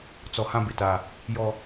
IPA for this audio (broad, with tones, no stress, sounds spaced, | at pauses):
t͡s ɔ˨ h ã˦ b ɪ˨ t a˨ | j ɔ˨